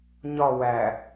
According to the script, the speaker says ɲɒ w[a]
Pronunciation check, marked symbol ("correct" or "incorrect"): incorrect